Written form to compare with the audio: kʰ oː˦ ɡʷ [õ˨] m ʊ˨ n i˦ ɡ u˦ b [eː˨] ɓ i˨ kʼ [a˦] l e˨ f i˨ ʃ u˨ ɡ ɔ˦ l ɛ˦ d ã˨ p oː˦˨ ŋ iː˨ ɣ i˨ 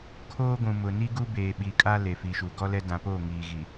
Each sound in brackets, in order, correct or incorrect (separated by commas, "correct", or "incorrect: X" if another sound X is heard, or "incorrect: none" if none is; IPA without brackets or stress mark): incorrect: ũ˨, correct, correct